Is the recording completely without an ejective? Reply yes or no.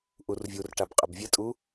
no